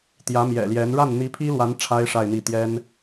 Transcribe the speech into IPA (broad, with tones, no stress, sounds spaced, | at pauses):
t̪ j ä˧˥ m j ɛ̰˨˩ l j ɛ˧˥ n ɻ a˥˩ n n̪ i˧˥ pʰ i˥ l w a˧˥ n ʈ͡ʂʰ a˥ ɪ̯ ʂ a˥˧ ɪ̯ n̪ i˥˩ t̪ j ɛ˥ n